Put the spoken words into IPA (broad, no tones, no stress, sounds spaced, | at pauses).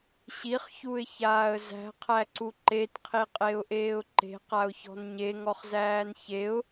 ɕ i χ ç u ɪ̯ ç aː ə̯ z æ̤ qʰ æ ǀ u ǃ e t qʰ i qʼ e ʊ̯ ʔ eː ʊ̯ ǃ e̤ q a ʊ̯ ç ɔ̤ n ɲ e ŋ ɔ χ z æː n ç e ʊ̯